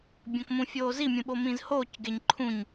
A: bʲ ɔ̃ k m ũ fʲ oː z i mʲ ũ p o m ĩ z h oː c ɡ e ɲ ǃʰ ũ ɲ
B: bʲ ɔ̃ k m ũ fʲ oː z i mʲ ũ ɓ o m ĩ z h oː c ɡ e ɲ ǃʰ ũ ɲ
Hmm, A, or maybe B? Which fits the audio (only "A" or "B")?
B